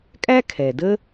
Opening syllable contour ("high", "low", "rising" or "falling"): high